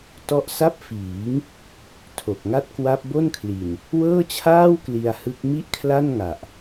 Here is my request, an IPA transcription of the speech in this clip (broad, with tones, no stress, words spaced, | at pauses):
tɔ˥˩ʔ sa˥˩p̚fiː˩˦ŋ | tʰo˨˩k̚ŋa˥˩t̚ kwa˦˥p̚bo˥˩nkʰli˨˩n | wɤː˥˩t͡ɕʰaː˥˩w kli˧a̯ hɯ˦˥k̚ mi˥˩ʔkʰla˥˩n ŋa˨˩ʔ